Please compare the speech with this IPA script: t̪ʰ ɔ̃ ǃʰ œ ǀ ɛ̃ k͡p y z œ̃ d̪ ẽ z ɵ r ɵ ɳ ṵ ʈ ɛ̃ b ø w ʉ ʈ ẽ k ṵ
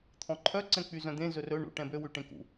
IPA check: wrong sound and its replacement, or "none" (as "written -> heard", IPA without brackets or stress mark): none